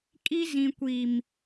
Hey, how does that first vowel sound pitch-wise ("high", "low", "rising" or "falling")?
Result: high